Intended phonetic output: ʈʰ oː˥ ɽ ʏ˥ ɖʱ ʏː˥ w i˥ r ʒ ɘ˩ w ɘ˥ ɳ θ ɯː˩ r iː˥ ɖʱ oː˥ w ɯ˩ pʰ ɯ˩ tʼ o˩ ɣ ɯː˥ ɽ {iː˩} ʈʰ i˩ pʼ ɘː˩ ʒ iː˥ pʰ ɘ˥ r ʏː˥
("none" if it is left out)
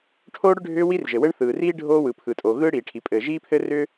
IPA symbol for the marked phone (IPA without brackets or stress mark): iː˩